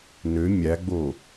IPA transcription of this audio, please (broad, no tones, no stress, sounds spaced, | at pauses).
n ø mʲ æ ɡ͡b o